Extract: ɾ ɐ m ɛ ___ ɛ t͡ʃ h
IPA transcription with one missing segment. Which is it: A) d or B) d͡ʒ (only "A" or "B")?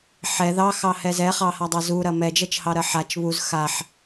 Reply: B